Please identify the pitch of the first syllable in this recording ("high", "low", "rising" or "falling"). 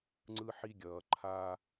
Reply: high